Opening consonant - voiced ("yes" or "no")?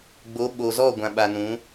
yes